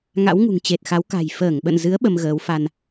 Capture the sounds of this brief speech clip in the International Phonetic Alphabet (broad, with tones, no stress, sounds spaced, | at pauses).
ŋ a̰˧˥ w ŋ ṳ˨˩ ŋ t͡ɕ e˨˩ t̚ x a˨˦ w k a̤˨˩ j f əː˧˩ ŋ ɓ ə̰˧˨ n z ɨ˨˦ ə̯ ɓ ə˧ m ɣ əː˨˦ w f a˧ n